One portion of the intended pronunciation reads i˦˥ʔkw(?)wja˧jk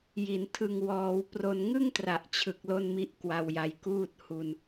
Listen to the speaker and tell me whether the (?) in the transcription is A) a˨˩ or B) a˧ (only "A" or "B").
B